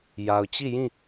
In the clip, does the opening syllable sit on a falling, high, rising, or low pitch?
low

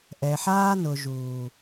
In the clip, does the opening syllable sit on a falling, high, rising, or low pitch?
low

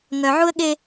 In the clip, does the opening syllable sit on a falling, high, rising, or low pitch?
low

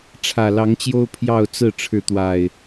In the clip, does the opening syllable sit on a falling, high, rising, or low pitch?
low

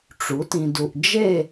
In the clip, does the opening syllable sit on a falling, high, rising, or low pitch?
rising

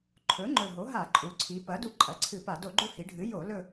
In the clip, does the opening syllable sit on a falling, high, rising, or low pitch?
rising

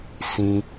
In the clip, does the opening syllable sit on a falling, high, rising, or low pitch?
low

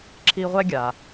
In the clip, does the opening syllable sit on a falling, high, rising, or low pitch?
high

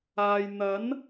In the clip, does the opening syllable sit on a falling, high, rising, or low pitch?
low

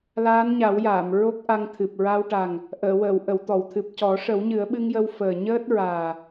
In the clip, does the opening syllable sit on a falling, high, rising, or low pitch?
rising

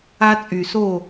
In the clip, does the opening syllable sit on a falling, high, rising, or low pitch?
high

